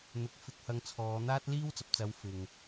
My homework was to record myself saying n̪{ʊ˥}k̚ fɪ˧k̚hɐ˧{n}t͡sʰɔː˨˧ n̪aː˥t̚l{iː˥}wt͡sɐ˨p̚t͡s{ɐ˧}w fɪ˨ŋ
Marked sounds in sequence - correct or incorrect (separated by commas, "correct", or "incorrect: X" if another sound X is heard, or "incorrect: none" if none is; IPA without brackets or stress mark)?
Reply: incorrect: ʊ˧, incorrect: ŋ, correct, incorrect: ɐ˨˧